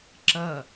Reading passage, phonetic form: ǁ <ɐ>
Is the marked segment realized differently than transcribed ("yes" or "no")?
no